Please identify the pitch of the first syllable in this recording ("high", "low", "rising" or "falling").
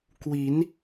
rising